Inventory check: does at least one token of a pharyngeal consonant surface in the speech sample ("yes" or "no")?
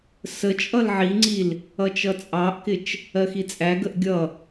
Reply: yes